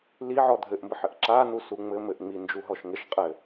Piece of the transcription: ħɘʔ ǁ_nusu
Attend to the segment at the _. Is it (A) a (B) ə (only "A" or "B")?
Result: A